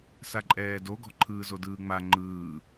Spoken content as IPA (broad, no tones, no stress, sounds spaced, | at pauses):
s a ǃʼ ɛː d o ɡ ɔ̤ ǃʰ ɯː z o d ɯː ŋ͡m a ŋ͡ǃ ɯː